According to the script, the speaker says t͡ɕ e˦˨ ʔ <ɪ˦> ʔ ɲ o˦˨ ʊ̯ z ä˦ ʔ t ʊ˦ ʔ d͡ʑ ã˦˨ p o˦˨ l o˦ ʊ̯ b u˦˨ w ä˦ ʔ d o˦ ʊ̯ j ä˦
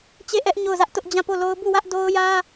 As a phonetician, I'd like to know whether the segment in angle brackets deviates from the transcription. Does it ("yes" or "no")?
yes